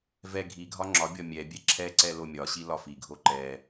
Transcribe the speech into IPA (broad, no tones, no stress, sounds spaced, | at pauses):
v ɛ ɡʱ i ɡʱ ɒ ŋ͡ǁ ɒ bʲ ɒ mʲ ɛ bʲ ɛ ǁʰ ɛ ǀ ɛ l o mʲ ɒ ɕ i l ɒ f i ɡʱ o ǃ ɛ